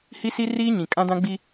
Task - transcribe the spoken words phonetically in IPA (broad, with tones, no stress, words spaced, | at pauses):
hi˦si˦riː˦ɲĩ˨ kʼã˦dã˦ ɡ͡bi˦